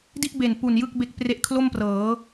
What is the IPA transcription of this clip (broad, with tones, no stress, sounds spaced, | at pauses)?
d i˥˩ ʔ b e˨˩ n p u˨˩ n j ɯ˥˩ k̚ b e˦˥ k̚ p r e˦˥ ʔ kʰ l o˥˩ m p r ɤː˩˦